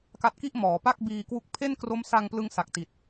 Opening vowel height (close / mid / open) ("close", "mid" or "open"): open